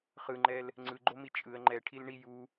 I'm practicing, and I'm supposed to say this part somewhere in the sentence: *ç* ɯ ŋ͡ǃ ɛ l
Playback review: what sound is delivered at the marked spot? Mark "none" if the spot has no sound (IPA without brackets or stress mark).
χ